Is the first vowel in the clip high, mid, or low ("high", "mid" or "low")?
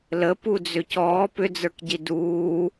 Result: mid